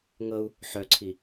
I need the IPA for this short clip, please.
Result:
ŋ ɤ u̯ | ħ œ ǀʰ i

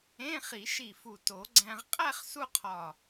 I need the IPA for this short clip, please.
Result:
ẽ˧˥˧ χ i˨˩˦ ʃ i˧˩ f u˧˩ t o˨˩˦ ɡ͡ǀ æ̃˧ ʁ qʼ æ˥˧ χ s u˥ qʰ ɒ˧˩

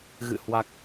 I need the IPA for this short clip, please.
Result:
ɣ ɨ̰˧˨ h w a˨˩ k̚

